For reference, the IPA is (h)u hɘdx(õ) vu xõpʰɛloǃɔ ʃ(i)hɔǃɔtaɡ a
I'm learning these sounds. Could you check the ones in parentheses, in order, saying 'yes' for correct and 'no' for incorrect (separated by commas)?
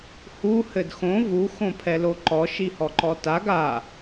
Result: yes, yes, yes